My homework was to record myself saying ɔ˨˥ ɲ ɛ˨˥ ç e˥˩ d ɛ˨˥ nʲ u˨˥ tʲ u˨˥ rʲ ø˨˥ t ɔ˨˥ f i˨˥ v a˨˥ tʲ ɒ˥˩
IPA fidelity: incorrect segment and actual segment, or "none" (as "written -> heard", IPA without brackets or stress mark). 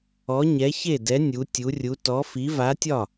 ø˨˥ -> u˨˥